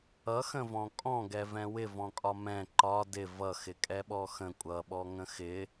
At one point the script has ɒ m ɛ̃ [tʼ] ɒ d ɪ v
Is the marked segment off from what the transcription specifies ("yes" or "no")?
yes